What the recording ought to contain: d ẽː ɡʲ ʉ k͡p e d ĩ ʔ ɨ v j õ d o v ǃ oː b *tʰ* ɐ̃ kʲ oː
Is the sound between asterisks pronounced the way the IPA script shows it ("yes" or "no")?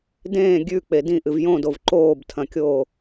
yes